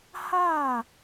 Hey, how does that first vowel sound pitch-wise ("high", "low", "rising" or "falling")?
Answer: falling